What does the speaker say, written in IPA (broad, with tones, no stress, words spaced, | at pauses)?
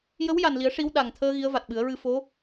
jə˧˥wja˨˩nli˨˩˦ə̯ ʂi˧˥w ɗa˨˩ŋt̪ʰəː˧ ɣi˧˥ə̯ va˨˩t̚ɓɨ˨˩˦ə̯ɹɨ˧ fo˧˥